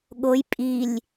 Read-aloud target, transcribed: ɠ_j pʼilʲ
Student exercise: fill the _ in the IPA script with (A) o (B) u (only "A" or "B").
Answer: A